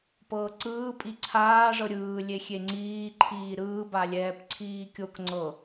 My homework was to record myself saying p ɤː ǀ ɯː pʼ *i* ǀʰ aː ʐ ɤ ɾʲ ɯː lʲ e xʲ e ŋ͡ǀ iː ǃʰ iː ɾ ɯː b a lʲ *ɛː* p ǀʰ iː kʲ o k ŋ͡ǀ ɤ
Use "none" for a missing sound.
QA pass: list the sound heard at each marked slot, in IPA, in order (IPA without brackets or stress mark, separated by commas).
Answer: i, ɛː